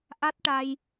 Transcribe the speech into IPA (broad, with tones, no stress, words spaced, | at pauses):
ʔa˦˥t̚ʈa˧j